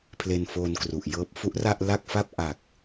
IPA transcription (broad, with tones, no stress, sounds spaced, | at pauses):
pʰ l e˧ n f oː˧ n k r u˨˩ ʔ j ɤː˥˩ p̚ f u˦˥ ʔ r a˥˩ ʔ l a˥˩ k̚ f a˥˩ p̚ ʔ a˨˩ k̚